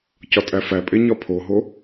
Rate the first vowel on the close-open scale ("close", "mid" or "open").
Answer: open